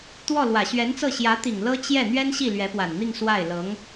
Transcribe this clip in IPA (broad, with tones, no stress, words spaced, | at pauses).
t̪wɔ˥˩ lwä˨˩ɕɥɛ˧˥nt͡sɤ˥˩ ɕjä˧˥t̪i˨˩ŋ lɤ˥ t͡ɕjɛ˥˩ n̪ɥɛ˥nɕi˥˩ lɥɛ˧˥pwa˨˩nn̪i˥˧ŋ swa˥˩ɪ̯lɤ˧˥ŋ